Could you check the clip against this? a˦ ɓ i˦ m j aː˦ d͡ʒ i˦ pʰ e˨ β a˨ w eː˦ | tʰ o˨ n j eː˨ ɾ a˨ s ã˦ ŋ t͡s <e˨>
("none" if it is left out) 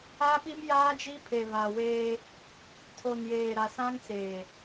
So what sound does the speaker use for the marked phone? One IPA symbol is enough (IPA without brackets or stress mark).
eː˨